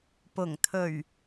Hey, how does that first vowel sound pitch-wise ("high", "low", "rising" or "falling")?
low